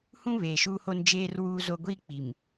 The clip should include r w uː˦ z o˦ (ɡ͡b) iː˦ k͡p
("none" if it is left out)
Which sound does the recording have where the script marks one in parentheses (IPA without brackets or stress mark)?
ɡʷ